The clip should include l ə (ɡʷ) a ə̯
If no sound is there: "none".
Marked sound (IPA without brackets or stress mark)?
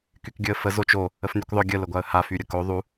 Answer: ɡʷ